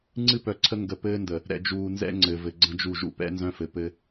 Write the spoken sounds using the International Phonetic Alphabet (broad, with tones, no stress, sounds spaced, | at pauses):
ŋ͡ǀ ɨ˦ p œ˨ ǀʰ ə˦ ŋ ɡ ə˨ p ɘː˦ n d ə˨ | ɾ ɛ̰˨ d͡ʒ uː˨ n z ɛ̰˦ ŋ͡ǀ ɘ˨ v ɘ˨ ɡ͡ǀ ə̃˦ d͡ʒ u˦˨ ʒ ṵ˨ p ɛ̰˦ n z œ̃˦ f ɘ˨ p ɘ˦